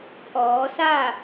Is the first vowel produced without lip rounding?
no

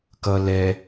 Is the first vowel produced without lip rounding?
yes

